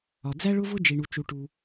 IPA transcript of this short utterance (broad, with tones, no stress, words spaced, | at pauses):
ɒ˩d͡zæ˥ ɭʊ˥vʊ˥ d͡ʒi˩ɳu˩t͡ʃu˩ʈu˩